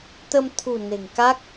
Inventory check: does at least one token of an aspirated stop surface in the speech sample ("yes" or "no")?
yes